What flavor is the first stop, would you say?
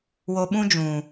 implosive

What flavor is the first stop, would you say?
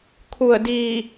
aspirated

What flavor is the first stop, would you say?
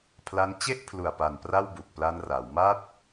aspirated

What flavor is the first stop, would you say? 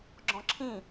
click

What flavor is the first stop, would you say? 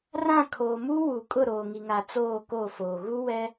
aspirated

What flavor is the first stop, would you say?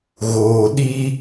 implosive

